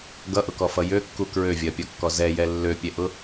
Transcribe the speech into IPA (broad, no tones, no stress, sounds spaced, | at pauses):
ɡ ʌ ʔ ʊ k ɔ f ʌ j ø kː u k ɹ ø vʲ ɐ pʲ ɔ kː ɔ z ɛ j ɛ lː ø pʲ ɛ ʔ ʊ